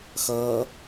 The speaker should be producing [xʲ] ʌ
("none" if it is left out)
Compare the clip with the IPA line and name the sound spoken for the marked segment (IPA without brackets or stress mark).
x